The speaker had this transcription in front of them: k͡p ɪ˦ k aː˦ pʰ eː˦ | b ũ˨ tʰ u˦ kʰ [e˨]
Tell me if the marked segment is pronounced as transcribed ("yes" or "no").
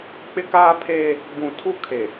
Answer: yes